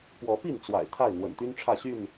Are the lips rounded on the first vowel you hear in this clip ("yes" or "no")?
yes